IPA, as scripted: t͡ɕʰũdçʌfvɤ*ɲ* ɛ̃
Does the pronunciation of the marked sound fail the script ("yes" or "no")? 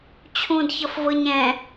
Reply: no